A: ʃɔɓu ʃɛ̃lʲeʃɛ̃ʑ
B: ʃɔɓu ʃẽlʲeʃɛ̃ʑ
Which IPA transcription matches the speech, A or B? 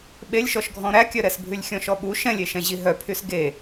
A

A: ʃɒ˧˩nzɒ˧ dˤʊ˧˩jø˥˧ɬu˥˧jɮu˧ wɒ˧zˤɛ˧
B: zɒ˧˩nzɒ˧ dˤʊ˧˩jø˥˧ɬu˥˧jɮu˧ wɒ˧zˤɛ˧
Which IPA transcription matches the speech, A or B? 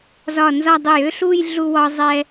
B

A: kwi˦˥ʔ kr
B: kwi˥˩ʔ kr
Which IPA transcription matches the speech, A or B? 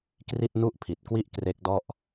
B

